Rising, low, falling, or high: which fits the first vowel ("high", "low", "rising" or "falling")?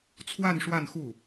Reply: falling